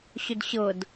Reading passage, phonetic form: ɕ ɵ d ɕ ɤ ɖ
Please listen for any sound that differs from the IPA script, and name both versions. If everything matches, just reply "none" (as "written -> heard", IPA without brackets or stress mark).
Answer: ɖ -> d